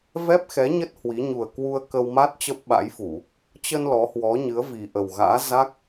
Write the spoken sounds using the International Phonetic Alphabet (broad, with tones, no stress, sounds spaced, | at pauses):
v ɛ˦˥ p̚ x ɛ˨˦ ɲ ə˦˥ t̚ h w i˨˦ ɲ u˨˩ ə̯ k w u˧ ə̯ k ə˧ w m a˦˥ t̚ t͡ɕ ə˦˥ p̚ ɓ a̰˧˥ j f u˧˩˨ | t͡ɕ ə˧ n l ɔ˨˦ h w ɔ˨˦ ɲ ɨ˨˦ ə̯ v i˨˩ ʔ ə˨˩ w ɣ a̰ː˧˥ z a˦˥ k̚